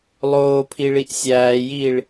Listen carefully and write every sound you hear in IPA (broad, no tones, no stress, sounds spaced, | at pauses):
lˠ oː pʰ i ɭ i ʔ sʲ æː j iː ɭ